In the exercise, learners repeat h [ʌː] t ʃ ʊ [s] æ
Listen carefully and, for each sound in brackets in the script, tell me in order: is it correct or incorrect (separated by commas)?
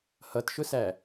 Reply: incorrect, correct